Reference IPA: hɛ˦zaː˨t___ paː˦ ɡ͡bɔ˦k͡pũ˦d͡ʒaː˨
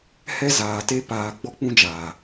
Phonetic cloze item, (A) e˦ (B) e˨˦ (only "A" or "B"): A